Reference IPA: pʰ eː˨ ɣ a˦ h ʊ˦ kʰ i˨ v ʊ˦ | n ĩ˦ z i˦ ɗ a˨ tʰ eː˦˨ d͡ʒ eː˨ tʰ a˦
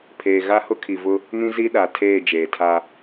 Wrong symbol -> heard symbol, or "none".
none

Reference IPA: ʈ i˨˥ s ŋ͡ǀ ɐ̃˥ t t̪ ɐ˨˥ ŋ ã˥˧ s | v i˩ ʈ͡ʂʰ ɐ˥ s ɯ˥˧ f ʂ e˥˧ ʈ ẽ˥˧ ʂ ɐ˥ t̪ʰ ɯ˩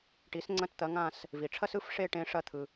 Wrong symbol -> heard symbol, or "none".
none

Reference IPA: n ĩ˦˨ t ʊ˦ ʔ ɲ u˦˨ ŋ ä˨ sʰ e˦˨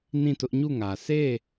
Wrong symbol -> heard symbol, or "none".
none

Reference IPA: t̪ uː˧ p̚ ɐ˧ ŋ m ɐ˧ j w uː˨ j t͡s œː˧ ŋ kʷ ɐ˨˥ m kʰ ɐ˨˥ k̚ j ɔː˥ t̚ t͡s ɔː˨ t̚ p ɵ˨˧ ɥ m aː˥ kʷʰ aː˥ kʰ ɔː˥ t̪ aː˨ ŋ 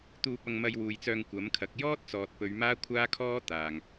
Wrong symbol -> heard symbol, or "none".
none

